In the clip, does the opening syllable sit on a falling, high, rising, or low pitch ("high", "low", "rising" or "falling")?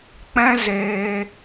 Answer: high